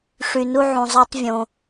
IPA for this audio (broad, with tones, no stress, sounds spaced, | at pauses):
ʂ y˩ n u˧ ʕ ũ˩ zˤ ɑ˧ tˤ vʲ õ˩